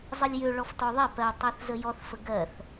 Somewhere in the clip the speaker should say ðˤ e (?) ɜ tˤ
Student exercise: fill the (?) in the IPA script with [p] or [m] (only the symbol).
p